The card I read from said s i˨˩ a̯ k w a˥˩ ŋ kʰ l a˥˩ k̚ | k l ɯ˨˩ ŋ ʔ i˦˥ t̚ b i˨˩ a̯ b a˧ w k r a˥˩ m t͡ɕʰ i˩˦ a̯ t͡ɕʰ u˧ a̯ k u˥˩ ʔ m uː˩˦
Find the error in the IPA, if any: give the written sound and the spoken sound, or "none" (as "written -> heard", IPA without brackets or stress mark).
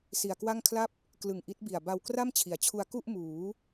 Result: k̚ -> p̚